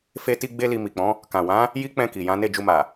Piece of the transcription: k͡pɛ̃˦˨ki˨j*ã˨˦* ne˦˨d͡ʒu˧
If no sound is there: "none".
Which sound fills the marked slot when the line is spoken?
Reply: ã˨˦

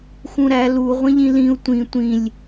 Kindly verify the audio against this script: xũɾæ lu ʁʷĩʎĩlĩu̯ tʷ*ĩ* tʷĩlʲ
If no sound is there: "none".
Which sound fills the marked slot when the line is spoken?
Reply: ĩ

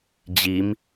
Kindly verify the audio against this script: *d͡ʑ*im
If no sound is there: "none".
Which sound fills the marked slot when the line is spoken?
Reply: d͡ʑ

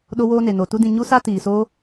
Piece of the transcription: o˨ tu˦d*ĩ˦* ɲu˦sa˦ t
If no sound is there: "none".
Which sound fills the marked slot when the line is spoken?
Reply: ĩ˦˨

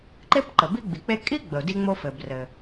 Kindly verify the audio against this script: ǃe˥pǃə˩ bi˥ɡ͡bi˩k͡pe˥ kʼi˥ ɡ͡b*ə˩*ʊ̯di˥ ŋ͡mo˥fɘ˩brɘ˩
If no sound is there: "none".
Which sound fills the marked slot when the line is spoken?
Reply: ə˩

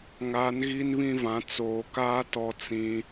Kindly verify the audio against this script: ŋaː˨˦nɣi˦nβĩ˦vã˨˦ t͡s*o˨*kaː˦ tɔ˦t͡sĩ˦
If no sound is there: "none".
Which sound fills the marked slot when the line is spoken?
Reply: oː˨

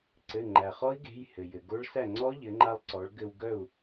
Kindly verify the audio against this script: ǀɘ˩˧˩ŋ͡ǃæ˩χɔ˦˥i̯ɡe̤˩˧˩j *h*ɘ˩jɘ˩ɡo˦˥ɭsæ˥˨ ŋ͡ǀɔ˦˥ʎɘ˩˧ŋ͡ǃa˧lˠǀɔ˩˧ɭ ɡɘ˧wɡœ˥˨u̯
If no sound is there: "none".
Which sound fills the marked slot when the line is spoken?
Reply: h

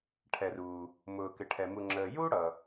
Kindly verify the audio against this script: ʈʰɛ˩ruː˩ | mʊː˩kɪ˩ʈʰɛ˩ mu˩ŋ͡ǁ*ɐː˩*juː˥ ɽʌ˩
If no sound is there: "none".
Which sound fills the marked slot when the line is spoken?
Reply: əː˩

